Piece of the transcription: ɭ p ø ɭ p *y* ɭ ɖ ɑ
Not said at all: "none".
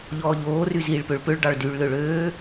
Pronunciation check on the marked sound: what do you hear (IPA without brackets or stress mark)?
ø